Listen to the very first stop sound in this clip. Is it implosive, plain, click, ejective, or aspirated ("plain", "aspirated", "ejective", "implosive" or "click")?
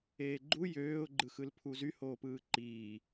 click